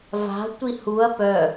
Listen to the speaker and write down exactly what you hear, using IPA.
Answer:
va̤ tʷihuɐ̯ pœ

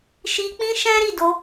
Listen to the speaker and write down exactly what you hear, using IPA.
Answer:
ʃi˧ k͡pĩ˦ʃɛ̃˦ɾi˦˨ do˧

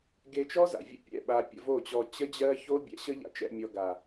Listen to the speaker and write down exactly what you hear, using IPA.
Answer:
ɡe˧t͡ʃɔ˦ za̰˨vʲə̰˦ pʲɛ̰˦˨ɓa˧ pʲə̰˧vo˦˨t͡ɕɔ˧ t͡ɕə˦d͡ʑɜ˦ ço˦bʲɛ̰˧ɕə˦ ʎa̰˧t͡ʃɛ̰˧mʲɔ˧ ɡa˨

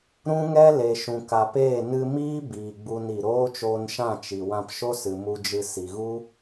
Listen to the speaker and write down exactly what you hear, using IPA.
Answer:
ɾũ˦ŋɛ˦ le˨ʃũ˨ka˨peː˦˨ nɨ˧miː˦ biː˨ɡ͡bu˧ni˨ ɾoː˦t͡ʃoː˧nʃã˦˨ t͡ʃi˨ wã˧pʃo˦sɨ˨ mu˧d͡ʒɨ˧ si˨ɣu˦

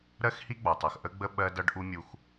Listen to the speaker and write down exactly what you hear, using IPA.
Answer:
ɾɜ˦xhi˦ɡ͡bɒ˨tˤʌ˨x ʔə˦ɡ͡bə˦ ɓɜ˦dʌ˦ɖʔu˦ mʲu˦x

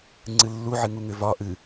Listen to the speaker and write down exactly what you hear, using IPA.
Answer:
ŋ͡ǀɨlːuʕɨŋu ŋʏvɒ ʔɨ

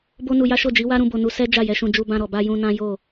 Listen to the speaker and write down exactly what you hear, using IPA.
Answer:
bo˦nu˧ja˦ ʃo˦˨d͡ʒi˨˦wa˦ɾũ˧ bo˧nu˧sɛ˦ d͡ʒa˦˨jɛ˧ʃũ˧ d͡ʒu˧bã˧ɾɔ˨ba˧ jũ˧nã˦jo˦˨

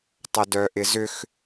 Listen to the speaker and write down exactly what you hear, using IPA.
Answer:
tˤədœʔɪzʏx

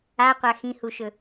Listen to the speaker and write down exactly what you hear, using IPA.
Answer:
aqʷa xĩhuʃɵ

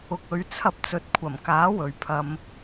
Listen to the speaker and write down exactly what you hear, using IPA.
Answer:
ʊ˧k̚ɵ˨˧ɥ t͡sʰɐ˧p̚t͡sɵ˨˥t̚kʷʰɐ˨˩mkaː˨˥ wɵ˨ɥpʰɐ˧m

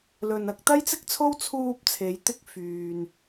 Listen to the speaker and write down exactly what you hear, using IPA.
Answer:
lɵ˧n ɐ˨˥k̚t̪ɐ˥jt͡sɪ˥k̚t͡sʰo˥w t͡sʰuː˧p̚t͡sʰe˨˧jt̪ɪ˧k̚ fyː˧n

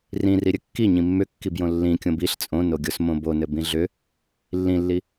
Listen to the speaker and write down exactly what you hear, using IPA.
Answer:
rĩ riɾʲɘkːi ɲĩmːʏkːibjõ lːĩ kʲõbiɬ t͡sʼõnoɡʲos mõbonɘ bĩɮʏ | lːĩlːi

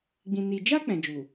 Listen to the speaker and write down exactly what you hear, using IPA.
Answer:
ɡ͡bĩ˧ni˧ d͡ʒa˧ k͡pɛ̃˨d͡ʒu˨

